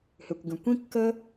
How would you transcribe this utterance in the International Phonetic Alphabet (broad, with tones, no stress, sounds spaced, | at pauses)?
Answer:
h ʏ˩ kʷ ɡ ə̃˩ kʷ ĩ˥ kː ə˥